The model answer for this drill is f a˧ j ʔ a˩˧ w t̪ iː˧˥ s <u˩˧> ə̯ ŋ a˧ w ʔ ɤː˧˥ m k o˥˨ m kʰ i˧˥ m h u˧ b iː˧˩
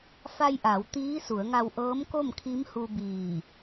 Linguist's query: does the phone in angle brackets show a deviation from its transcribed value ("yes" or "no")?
no